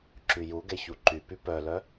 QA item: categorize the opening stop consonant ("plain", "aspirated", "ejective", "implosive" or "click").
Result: click